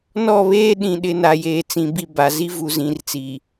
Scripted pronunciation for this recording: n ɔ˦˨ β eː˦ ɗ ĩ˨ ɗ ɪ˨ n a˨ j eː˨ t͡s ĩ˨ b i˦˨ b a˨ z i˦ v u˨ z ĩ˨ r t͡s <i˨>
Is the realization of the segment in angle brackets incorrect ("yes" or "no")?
no